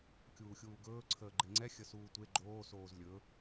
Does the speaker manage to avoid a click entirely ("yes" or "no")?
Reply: no